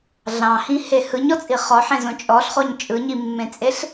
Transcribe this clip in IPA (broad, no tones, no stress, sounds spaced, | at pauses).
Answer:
ɮ ɑ̃ h ĩ h e h ɯ ɲ ɔ t͡sʼ i χ ɔ ħ ẽ z õ t͡ʃʼ ɔ ɬ χ o ɲ t͡ʃʼ ɯ ɲ i mː ẽ t͡sʼ e ɬ